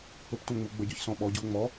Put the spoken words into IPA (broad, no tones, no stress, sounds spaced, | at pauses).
p ɵ p tʷ ã ŋ͡m u ɡ͡b ə ɟ ɵ ç s ɔ̃ ɓ ɔ ɟ u o̯ ŋ͡m ɔ